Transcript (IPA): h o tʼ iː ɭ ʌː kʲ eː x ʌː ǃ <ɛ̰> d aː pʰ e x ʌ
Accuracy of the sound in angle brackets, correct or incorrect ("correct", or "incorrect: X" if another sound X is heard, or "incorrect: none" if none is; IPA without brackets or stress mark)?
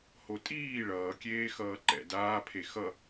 correct